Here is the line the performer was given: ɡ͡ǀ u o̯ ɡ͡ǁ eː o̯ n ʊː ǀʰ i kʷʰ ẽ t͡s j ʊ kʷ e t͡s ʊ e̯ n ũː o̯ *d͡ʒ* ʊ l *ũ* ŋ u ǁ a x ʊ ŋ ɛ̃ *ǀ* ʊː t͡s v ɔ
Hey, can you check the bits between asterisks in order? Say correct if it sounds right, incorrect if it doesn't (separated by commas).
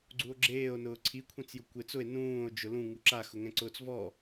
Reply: correct, correct, correct